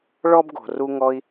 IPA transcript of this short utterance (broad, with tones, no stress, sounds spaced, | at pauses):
ɭ ɔ˦ b ɡ o̤˨ r u˧ ŋ ɔ˧ i̯